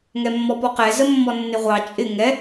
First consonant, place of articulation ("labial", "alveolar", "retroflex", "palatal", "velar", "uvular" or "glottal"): velar